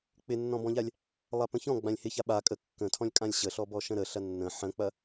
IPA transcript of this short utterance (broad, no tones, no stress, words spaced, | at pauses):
k͡pɪnːɔ̃bɔ̃ʎalʲ | lˠapə̃çɔ̃ ɡ͡bãlʲhɪça ɓa kʼə kːə̃tʰɔ̃lʲ kʼãlʲɕəɬɔ bɔʃə̃ɾəɬɐ nːə̃ ħə̃k͡pɐ